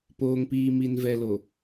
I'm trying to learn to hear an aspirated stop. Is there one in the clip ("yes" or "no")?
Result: no